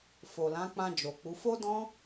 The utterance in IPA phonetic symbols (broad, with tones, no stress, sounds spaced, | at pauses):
f o˨ l ã˨˦ k͡p ã˧ d͡ʒ o˨ k͡p u˨˦ f o˦ d ɔ̃˦